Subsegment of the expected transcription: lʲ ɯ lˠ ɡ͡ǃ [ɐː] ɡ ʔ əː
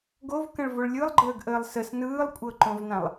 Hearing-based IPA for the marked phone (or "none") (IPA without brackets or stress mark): əː